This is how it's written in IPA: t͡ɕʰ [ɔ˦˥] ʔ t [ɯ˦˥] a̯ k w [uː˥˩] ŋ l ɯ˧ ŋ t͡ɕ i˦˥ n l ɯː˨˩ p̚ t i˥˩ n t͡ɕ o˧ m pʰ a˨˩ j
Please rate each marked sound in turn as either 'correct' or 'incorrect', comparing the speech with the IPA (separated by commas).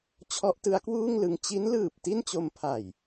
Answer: correct, correct, correct